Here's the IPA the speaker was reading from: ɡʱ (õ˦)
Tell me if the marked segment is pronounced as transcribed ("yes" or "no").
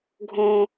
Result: yes